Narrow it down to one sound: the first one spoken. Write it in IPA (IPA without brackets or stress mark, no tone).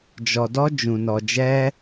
d͡ʒ